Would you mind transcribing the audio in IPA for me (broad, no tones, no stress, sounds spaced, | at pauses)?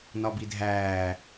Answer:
n ɒ b i dʱ æː